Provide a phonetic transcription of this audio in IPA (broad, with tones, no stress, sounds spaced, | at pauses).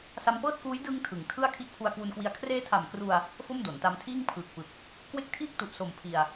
s a˧ m p ɤː˥˩ t̚ k uː˦˥ j d ɯ˧ ŋ tʰ ɯ˩˦ ŋ tʰ ɯ˥˩ a̯ kʰ i˦˥ ʔ pʰ u˧ a̯ k w u˧ n k w i˧ a̯ kʰ r eː˦˥ tʰ a˨˩ m k r u˧ a̯ | f o˥˩ m d o˩˦ n t a˧ m tʰ iː˥˩ ŋ pʰ ɯː˨˩ k̚ p ɯ˨˩ k̚ | k w e˥˩ k̚ tʰ iː˥˩ k̚ t u˨˩ ʔ s o˨˩ m pʰ i˧ a̯